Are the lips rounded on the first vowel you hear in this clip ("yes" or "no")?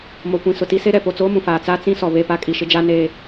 yes